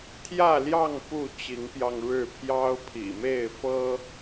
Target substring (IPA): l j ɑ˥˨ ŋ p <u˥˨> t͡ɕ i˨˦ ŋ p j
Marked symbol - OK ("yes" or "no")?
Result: yes